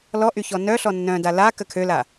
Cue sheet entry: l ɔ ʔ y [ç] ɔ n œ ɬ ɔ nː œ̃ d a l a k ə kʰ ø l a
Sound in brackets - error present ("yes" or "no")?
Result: no